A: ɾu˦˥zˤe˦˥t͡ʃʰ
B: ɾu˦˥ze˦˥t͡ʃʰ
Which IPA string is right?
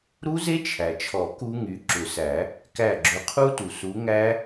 B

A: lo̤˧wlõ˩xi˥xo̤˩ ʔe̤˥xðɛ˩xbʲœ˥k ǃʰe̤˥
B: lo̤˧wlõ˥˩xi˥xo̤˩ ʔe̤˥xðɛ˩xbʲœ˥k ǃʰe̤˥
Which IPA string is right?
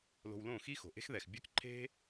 B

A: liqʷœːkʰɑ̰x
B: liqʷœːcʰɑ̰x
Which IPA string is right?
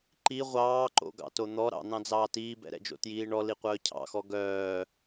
B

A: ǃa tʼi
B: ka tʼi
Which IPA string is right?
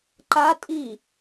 A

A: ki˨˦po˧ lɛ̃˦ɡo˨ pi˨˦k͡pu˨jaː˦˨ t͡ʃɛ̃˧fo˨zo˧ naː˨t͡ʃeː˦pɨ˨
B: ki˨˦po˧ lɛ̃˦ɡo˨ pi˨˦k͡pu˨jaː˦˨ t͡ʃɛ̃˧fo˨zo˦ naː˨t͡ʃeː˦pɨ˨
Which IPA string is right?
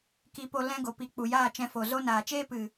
B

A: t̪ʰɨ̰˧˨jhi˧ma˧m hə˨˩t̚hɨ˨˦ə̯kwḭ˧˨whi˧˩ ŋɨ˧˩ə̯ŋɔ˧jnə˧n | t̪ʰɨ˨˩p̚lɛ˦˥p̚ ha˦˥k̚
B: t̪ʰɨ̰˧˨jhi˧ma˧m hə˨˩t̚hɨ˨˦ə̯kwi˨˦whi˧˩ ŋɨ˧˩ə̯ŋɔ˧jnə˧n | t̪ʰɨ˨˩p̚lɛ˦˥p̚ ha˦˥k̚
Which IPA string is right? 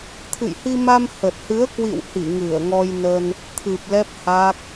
A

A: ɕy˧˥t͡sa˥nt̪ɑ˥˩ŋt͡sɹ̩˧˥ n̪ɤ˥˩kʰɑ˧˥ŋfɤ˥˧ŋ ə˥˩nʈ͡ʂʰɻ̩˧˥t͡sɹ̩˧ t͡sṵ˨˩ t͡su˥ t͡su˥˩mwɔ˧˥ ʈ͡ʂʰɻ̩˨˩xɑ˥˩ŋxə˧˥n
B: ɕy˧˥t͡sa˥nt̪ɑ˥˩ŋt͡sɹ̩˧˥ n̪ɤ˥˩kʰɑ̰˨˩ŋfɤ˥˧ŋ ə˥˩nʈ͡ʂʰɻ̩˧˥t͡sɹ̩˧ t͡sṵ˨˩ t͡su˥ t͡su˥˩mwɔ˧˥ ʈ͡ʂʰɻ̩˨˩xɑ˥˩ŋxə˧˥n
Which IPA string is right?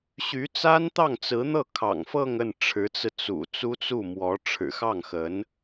B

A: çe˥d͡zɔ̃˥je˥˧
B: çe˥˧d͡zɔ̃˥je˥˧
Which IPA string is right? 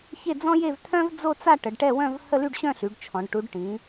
B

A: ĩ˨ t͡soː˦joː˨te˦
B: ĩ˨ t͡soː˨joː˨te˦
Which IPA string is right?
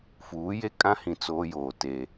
A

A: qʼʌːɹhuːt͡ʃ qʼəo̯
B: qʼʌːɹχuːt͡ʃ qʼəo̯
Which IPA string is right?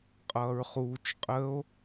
B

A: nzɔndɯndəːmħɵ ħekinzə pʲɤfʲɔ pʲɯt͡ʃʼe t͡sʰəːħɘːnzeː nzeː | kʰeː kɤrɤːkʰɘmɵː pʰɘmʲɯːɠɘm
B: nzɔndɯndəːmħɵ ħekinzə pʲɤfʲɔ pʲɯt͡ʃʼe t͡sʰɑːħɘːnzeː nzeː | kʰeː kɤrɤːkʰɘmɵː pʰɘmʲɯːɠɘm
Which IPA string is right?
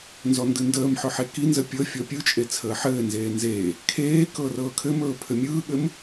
A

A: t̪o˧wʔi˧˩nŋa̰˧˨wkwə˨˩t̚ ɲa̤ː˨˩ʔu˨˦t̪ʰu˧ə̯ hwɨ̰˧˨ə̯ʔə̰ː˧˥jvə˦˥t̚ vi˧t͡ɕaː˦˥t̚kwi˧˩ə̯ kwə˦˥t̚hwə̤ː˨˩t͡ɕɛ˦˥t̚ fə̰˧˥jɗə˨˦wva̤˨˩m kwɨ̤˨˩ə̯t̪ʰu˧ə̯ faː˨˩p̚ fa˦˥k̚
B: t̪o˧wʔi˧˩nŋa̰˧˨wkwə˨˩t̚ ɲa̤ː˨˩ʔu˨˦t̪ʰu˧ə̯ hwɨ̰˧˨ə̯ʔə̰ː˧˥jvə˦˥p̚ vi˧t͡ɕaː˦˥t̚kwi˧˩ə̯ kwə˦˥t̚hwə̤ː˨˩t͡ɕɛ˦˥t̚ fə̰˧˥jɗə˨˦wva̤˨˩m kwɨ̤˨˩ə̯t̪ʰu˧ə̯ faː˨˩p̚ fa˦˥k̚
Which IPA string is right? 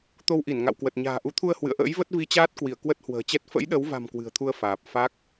A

